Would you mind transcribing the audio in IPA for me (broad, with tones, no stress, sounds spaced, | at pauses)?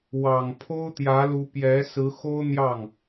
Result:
w ɑ˨˩ ŋ pʰ o˥ ʊ̯ t̪ j ä˧˥ l u˧˥ p j ɛ˧˥ s ɹ̩˧˥ x o˥ ʊ̯ n̪ j ɑ˥˩ ŋ